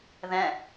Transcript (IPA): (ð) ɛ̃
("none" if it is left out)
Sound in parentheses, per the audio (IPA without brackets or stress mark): ð